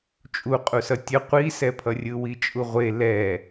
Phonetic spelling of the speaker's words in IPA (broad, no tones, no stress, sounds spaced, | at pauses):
t͡ʃʼ u qʼ u s ʌ tʲ ʌ qʷ i s ɛ pʰ ʌ rʲ ɯ w i t͡ʃʼ u ʁʷ e l ɛ